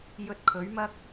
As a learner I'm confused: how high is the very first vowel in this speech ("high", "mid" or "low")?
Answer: mid